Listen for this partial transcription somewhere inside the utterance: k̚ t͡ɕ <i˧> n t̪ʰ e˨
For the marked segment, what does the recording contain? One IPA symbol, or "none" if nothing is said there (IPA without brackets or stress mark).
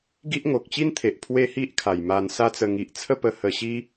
i˦